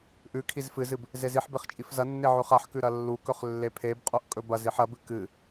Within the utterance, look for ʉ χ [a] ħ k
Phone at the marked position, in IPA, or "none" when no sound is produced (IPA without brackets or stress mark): a